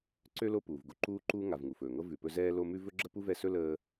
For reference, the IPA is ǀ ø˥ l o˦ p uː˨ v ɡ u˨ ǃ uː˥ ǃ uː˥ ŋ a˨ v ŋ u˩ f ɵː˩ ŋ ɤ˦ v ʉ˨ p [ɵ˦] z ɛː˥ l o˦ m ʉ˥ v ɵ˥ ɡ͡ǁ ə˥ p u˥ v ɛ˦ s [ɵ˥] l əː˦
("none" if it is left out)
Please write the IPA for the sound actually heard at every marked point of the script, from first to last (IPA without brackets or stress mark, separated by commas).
ɵ˦, ɵ˥